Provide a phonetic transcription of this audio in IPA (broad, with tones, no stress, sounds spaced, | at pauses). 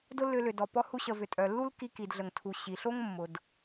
d ʊ˥ lː ʏ˧ l ʏ˩ d ɔ˩ p ɔ˧ h u˧ ɕ ə˩ v ʏ˩ tʼ œ˩ lː u˥ l k i˧ k i˩ d ɮ ə˩ ŋ tʰ u˩ ɕ i˩ ɬ o˥ ŋ mː ʊ˩ d